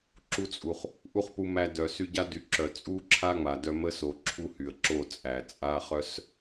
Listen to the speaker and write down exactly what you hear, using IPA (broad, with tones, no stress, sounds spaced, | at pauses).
ǁ u˧ t͡sʼ u˨ χ | ʔ u˦ χ p u˧ m æ˧ d œ˨ s y˧ ɟ a˦ d y˨ ǁ œ˨ t͡sʼ u˦ ǁʰ a˦ ŋ͡m a˨ d œ˧ m ə˦ s o˨ ǁʰ u˧ h y˨ ə̯ ǁ o˦˨ t͡sʼ æ˨ t͡sʼ a˦ χ œ˦ s